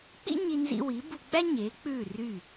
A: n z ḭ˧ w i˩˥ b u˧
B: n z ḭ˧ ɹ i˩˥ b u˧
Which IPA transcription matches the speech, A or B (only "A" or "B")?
A